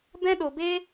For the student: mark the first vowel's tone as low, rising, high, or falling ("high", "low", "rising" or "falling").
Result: high